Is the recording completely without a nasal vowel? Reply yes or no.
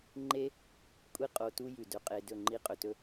yes